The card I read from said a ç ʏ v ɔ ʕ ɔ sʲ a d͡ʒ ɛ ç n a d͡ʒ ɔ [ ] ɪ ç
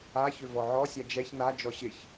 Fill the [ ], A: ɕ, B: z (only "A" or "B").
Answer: A